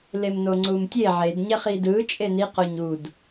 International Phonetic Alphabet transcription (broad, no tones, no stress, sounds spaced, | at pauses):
l e m n o ŋ͡ǀ u m tʲ e ʕ e d ɲ ɛ χ i d ɯ t͡ʃʼ e n i q o ɲ u d